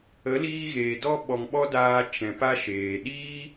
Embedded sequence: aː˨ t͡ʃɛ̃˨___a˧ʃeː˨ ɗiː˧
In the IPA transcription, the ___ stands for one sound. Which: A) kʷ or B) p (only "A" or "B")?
B